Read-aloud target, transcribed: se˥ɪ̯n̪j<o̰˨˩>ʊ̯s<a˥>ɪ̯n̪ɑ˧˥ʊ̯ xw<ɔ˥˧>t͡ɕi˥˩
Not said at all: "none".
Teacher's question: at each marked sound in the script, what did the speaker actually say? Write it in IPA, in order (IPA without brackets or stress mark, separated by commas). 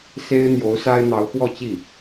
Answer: o˧˥, a˥, ɔ˥˧